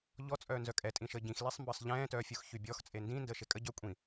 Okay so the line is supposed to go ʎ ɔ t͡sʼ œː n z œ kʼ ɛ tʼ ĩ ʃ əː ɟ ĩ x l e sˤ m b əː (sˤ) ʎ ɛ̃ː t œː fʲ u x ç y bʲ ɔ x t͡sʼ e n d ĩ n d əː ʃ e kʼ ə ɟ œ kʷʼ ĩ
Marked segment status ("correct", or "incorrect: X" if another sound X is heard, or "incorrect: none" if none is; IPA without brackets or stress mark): correct